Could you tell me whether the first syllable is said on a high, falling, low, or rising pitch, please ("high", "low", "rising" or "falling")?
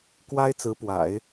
high